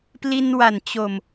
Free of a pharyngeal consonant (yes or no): yes